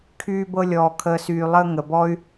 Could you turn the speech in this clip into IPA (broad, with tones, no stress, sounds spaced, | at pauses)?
kʰ yː˧ b ɤ˧ lʲ ɔː˨ kʰ əː˨ s yː˨ lˠ əː˧ ŋ ə˨ b ɔ˦ y̯